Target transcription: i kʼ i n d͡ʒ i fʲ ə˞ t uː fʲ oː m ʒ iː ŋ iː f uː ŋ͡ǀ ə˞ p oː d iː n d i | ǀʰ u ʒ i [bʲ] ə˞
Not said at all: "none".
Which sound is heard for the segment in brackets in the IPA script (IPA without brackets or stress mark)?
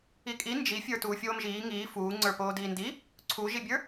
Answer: bʲ